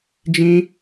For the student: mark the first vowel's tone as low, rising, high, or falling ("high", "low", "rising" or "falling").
high